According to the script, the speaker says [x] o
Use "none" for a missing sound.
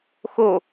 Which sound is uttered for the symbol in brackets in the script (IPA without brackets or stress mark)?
x